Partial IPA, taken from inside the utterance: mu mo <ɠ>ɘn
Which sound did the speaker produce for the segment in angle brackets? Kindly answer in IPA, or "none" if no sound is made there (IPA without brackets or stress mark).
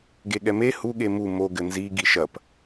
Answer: ɡ